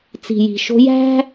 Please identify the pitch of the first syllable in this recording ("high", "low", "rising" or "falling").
low